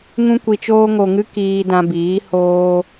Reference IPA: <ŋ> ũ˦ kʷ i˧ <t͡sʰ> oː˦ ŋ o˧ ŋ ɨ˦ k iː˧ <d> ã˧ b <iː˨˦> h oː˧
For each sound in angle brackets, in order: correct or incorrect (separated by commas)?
correct, incorrect, correct, correct